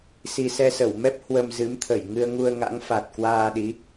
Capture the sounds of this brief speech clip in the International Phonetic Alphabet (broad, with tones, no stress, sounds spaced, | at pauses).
s i˧ s ɛ˧ s ə˧˩ w m ɛ˦˥ p̚ h w ə˧ m z ɨ˨˦ m t̪ʰ ə˧˩ j ŋ ɨ˧ ə̯ ŋ u˧ ə̯ ŋ a̰˧˥ ŋ f a˨˩ t̚ k w aː˧ ɗ i˨˦